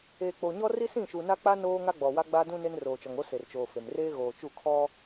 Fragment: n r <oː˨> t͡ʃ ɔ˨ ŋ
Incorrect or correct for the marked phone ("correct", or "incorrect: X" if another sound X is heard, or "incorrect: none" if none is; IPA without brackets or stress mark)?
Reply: correct